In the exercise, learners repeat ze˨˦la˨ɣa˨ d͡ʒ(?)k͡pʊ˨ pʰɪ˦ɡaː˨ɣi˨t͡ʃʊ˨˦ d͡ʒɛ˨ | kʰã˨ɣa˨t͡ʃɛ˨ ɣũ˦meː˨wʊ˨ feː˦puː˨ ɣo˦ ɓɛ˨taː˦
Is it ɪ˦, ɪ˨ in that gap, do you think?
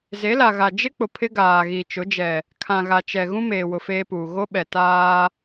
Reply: ɪ˦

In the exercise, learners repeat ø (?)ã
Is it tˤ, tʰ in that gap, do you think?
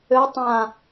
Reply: tˤ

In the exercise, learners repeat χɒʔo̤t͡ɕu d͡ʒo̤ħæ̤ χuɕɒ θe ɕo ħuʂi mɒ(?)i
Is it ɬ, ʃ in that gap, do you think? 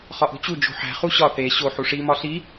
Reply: ɬ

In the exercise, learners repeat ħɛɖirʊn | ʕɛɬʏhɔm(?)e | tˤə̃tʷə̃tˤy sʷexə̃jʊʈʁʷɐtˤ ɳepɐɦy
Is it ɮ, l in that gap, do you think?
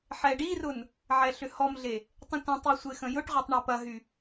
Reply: ɮ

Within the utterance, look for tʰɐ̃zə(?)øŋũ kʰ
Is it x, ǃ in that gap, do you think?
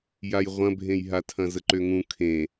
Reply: ǃ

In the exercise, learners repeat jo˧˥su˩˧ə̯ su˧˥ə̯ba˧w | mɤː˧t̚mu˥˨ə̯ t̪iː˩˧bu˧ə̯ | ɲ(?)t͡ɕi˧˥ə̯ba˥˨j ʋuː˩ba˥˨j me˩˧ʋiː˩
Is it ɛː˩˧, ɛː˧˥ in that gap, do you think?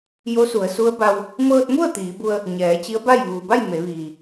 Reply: ɛː˩˧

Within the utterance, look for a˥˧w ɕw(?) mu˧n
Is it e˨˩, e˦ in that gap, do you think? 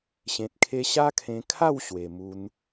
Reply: e˨˩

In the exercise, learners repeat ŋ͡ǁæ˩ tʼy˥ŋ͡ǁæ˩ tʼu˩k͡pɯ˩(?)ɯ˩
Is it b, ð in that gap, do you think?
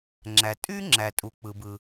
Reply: b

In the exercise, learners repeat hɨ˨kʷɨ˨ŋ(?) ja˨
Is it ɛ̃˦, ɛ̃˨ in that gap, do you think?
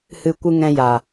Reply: ɛ̃˨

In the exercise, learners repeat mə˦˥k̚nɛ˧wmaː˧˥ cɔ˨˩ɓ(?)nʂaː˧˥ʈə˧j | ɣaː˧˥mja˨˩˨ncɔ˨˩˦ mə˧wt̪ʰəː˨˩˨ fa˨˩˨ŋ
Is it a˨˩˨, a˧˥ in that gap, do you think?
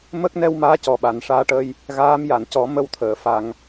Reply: a˨˩˨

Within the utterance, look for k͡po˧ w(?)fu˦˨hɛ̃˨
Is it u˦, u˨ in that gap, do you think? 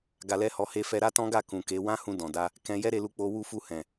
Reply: u˦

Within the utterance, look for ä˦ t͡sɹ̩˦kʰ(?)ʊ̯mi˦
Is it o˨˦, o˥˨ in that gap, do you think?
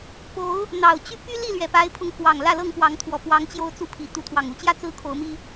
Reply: o˨˦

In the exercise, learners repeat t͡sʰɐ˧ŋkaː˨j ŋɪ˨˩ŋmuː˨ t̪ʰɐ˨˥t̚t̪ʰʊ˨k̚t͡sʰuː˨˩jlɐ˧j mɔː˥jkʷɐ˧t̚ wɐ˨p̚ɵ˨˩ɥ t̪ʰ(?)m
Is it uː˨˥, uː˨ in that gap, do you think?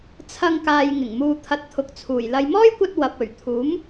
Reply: uː˨˥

